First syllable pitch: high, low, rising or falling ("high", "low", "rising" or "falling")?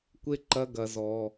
low